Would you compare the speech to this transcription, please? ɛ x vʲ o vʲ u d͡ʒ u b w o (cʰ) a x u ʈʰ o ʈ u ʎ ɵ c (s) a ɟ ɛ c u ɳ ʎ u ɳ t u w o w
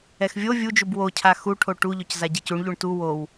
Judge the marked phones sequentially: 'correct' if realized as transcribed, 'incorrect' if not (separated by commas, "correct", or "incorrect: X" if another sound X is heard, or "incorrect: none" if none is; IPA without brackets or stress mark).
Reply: correct, incorrect: z